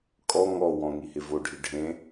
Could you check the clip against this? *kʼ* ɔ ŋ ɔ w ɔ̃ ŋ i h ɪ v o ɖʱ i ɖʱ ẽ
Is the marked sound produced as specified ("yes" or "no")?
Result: yes